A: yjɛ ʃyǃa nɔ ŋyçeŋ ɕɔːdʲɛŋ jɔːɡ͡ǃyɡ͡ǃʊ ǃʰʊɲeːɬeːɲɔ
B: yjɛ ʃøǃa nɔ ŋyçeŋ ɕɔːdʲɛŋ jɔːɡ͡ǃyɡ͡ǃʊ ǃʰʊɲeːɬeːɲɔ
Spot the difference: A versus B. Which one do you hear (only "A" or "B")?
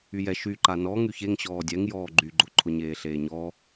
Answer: A